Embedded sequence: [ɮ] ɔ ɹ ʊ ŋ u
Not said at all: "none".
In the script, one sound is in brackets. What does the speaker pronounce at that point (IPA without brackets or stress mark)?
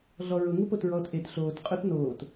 ɮ